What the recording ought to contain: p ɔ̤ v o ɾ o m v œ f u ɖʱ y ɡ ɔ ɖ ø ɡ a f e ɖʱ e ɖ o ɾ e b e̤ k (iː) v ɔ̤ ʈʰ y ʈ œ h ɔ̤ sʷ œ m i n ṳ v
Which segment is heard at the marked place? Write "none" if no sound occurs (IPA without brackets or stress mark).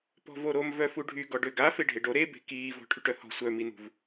iː